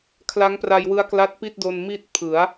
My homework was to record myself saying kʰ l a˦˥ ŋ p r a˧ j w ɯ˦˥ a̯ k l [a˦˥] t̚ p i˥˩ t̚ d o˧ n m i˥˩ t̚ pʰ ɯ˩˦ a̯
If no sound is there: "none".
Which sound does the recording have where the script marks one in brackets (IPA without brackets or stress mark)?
a˦˥